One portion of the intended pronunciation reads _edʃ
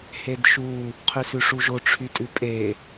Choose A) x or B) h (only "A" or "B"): B